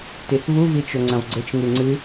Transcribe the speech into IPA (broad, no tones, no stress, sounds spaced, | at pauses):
t i θ v u v i t͡ʃ o ŋ͡ǀ ɐ̃ v ɡ͡ǀ ɘ t͡ʃ ŋ ɨ ŋ͡ǀ ɨ